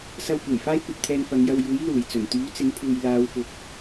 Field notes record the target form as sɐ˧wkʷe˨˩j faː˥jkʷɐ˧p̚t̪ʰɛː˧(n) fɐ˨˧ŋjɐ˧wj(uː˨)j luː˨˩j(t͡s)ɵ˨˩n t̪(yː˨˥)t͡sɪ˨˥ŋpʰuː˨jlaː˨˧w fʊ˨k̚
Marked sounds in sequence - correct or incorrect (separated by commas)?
correct, incorrect, correct, correct